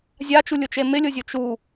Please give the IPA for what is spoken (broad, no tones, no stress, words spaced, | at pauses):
zʲat͡ʃulʲʊt͡ʃe mɪlʲozʲo t͡ʃu